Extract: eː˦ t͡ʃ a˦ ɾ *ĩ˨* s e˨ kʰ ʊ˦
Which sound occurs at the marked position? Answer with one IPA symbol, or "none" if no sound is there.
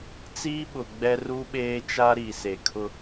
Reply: i˨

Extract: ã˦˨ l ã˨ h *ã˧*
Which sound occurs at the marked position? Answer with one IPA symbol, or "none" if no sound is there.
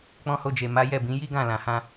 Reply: ã˧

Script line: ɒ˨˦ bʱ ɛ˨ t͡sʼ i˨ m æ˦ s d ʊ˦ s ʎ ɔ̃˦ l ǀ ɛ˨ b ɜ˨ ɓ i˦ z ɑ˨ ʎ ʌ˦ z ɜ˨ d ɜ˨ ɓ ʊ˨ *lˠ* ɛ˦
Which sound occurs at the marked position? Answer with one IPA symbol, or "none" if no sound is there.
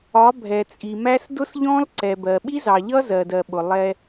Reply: lˠ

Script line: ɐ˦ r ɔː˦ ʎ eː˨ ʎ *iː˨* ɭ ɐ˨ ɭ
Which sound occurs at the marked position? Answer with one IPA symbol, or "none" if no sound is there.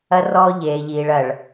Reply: iː˨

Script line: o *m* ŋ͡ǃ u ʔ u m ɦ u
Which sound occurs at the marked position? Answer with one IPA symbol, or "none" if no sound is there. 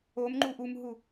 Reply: m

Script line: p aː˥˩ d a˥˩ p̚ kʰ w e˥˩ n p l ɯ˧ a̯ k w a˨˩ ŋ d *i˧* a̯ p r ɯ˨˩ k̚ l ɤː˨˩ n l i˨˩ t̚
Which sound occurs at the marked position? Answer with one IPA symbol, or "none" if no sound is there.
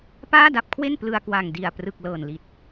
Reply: i˨˩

